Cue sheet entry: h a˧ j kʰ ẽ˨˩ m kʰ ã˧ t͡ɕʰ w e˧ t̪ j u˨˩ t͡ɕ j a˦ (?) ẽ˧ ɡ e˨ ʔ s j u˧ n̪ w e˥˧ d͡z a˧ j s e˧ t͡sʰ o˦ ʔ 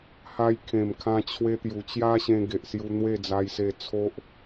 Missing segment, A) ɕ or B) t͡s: A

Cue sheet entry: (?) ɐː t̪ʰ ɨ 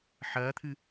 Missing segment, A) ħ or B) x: A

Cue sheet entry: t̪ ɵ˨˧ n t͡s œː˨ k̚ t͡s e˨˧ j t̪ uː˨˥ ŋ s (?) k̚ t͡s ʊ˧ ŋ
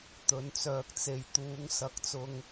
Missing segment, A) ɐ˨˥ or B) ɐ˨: A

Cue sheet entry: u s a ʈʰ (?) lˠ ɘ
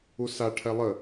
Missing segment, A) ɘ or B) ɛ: B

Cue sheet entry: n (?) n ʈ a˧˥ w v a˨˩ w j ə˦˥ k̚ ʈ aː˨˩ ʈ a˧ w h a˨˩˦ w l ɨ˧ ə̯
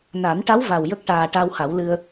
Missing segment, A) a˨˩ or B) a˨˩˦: B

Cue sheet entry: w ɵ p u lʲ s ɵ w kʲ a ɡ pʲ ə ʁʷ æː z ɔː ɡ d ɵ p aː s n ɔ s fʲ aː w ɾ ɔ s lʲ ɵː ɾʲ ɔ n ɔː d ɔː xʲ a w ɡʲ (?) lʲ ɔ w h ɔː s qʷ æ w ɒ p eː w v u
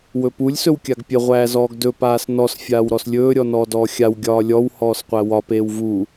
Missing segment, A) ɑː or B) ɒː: B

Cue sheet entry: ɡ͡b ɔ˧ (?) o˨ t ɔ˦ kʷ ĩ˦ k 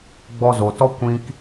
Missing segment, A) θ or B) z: B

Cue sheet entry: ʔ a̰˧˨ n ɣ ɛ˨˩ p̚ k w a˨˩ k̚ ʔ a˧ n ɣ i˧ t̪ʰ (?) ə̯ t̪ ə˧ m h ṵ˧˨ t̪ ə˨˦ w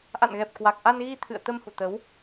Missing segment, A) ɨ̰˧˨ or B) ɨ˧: A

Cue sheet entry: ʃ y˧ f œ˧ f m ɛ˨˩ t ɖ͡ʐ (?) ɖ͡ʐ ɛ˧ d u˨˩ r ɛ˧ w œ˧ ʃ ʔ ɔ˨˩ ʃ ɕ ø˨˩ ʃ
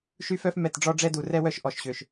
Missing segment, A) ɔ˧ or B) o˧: A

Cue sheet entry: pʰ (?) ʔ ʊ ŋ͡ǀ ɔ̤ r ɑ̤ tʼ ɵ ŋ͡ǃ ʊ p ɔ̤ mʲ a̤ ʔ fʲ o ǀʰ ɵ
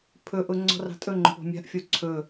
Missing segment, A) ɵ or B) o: A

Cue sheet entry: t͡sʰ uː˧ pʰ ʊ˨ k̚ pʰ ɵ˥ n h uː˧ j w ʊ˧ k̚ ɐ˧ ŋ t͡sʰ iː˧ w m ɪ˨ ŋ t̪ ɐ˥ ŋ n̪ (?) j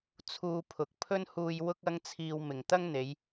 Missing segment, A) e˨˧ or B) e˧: A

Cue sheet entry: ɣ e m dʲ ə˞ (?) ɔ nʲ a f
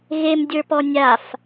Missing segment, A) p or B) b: A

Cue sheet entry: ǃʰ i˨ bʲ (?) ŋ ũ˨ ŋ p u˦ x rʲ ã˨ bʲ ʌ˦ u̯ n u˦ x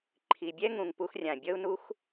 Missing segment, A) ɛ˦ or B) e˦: A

